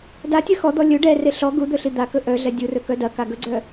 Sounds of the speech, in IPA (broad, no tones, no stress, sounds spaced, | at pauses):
d a tʲ ɐ x ɔ d̪ ɔ lʲ ɵ ɖ ɛ r e ɬ ɔ ɡ u d̪ ɵ ɬ i d̪ a k ɵ ʔ œ ɮ ɛ dʲ u r ɵ k œ d ɐ k a ɡ ɵ ɡ͡ǀ œ